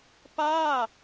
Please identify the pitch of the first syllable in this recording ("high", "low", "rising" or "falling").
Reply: falling